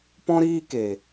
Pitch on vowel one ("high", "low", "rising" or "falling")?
high